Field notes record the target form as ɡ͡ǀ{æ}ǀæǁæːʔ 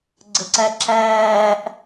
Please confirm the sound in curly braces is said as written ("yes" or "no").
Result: no